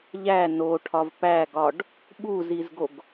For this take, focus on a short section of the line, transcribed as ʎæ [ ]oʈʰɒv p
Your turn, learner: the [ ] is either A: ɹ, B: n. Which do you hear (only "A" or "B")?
B